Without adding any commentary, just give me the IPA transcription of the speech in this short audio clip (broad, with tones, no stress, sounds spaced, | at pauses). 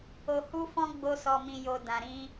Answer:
o˧ h u˦ f ɔ̃˦ ɡ͡b o˦ s ɔ˧ m ĩ˧ j o˧ d ã˨ ɾ ĩ˧